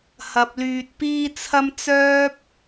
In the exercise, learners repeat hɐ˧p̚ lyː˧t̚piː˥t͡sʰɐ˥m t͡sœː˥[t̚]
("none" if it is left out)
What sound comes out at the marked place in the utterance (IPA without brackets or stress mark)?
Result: p̚